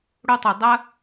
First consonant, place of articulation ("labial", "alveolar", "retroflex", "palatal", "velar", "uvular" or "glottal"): retroflex